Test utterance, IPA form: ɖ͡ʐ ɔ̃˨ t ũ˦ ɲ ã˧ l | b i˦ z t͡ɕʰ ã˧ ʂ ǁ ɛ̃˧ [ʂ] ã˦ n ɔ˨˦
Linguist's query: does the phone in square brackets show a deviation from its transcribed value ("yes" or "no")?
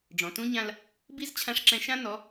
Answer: yes